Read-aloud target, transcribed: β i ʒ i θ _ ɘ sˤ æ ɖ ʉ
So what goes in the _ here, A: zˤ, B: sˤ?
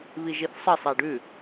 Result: B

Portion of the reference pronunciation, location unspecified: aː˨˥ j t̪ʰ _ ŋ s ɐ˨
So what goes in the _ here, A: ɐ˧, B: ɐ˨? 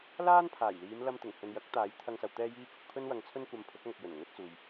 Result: A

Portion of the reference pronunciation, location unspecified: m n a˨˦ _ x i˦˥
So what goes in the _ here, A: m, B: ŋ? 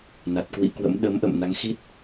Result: B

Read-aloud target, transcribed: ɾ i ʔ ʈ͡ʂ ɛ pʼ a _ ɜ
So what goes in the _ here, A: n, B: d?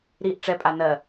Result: A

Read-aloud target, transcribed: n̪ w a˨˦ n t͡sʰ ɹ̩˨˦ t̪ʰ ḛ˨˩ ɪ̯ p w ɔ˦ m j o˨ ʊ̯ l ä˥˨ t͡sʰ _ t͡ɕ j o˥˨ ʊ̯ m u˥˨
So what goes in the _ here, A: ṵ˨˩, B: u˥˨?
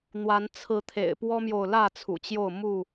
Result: A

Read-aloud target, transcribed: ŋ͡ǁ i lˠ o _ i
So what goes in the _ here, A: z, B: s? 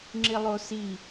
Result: B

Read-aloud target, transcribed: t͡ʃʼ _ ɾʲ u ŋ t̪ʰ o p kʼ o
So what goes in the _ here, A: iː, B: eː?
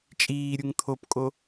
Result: A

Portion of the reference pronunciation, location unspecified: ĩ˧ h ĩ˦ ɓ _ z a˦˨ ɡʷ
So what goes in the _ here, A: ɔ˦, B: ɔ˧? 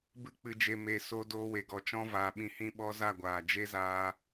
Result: A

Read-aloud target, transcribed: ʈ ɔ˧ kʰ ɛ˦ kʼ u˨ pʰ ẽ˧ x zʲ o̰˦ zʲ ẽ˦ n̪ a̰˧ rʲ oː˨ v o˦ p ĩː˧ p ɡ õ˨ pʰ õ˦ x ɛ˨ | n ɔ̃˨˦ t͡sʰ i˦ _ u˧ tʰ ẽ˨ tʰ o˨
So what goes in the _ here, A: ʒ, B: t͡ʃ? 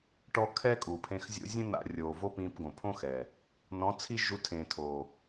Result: A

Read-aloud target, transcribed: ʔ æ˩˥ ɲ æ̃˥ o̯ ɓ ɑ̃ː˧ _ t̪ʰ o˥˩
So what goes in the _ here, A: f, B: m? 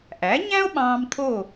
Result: B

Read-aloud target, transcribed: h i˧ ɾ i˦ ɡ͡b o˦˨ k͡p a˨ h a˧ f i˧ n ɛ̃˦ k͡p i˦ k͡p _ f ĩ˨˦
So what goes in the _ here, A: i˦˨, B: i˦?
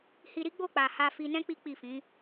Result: A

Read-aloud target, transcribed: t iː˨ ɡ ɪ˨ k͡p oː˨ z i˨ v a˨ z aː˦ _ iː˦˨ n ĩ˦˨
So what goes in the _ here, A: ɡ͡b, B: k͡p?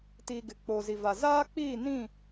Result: B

